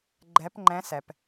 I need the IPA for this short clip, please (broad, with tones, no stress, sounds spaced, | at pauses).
ɡ͡ǃ ɛ˧˥ p ŋ͡ǃ ɛ̃˧˥ s ɛ˩ p